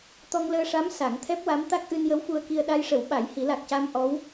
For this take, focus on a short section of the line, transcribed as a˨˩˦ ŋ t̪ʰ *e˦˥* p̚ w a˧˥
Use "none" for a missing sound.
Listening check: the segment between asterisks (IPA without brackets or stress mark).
ɛ˦˥